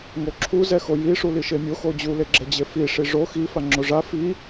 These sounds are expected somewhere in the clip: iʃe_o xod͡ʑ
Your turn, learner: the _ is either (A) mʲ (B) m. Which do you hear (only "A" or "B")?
A